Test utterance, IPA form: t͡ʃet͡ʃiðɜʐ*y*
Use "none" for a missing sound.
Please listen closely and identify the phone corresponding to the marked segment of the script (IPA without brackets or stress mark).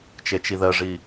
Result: i